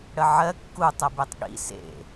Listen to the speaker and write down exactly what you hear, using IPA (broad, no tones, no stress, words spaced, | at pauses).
ɽəʕɜ kːutˤəbetˤ ɠḭ sḛ